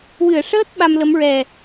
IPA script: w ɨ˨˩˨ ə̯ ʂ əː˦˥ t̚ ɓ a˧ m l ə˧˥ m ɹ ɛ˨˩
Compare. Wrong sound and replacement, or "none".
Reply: none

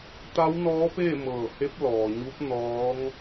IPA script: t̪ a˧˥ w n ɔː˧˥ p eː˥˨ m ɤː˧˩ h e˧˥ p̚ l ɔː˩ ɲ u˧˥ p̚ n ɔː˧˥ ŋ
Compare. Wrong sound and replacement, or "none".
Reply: none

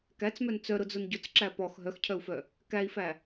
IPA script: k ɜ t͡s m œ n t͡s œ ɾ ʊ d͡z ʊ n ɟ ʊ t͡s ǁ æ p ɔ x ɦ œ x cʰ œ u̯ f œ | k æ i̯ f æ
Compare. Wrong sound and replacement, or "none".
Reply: ɜ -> æ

